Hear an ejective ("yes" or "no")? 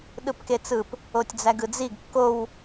no